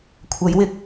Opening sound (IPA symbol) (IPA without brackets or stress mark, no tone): kʷʰ